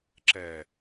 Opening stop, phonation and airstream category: click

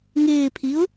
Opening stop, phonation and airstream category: aspirated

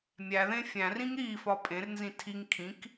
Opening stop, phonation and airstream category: ejective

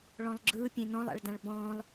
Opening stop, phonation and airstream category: click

